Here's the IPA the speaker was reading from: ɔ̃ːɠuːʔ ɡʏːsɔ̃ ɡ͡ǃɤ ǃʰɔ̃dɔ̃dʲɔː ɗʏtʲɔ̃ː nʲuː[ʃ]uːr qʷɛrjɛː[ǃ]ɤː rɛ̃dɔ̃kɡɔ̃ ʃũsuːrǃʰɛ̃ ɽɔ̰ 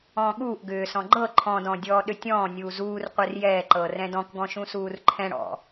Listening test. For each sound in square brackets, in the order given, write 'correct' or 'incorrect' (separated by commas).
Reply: incorrect, correct